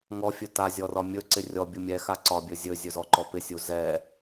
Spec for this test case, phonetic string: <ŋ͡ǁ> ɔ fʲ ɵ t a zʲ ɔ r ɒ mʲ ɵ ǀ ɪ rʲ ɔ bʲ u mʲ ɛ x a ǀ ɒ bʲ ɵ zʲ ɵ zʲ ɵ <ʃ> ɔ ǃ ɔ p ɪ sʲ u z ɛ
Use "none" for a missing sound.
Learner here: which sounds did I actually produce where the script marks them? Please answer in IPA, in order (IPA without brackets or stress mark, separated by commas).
ŋ, z